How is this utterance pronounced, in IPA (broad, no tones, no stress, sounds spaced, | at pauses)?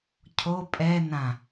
cʰ o pʼ ɛ n ã